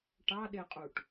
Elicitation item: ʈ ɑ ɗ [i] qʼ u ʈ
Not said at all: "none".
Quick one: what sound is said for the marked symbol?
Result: e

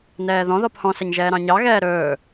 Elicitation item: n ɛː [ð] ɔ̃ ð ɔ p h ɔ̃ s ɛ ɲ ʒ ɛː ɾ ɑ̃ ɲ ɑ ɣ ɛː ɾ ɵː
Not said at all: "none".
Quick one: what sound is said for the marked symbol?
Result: ð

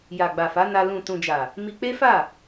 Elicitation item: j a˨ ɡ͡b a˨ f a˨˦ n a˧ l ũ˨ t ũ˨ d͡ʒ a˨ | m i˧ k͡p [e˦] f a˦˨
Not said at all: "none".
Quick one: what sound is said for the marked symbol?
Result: e˦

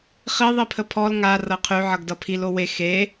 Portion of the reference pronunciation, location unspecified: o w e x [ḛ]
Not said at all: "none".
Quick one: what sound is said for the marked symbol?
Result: e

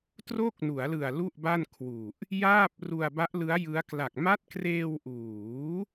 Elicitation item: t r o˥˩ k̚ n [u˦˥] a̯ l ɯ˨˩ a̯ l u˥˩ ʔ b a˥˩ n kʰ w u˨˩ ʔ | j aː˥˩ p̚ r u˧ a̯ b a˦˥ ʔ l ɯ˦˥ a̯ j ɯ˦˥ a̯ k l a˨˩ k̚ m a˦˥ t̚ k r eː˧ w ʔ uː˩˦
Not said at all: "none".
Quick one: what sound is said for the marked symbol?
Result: u˩˦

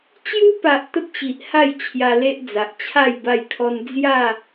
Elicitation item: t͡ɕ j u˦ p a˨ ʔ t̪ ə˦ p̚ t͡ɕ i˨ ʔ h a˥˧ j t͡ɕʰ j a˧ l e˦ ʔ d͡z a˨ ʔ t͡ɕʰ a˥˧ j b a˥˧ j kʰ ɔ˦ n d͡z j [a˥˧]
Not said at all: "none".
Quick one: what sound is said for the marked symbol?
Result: a˥˧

